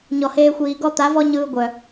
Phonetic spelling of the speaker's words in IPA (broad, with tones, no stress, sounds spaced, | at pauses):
ɲ ɔ˨ h eː˧ xʷ iː˨ ɡ ɔ˦ t̪ a˨˦ v ɔ˦ ɲ ɯː˧ ɡʷ œ˨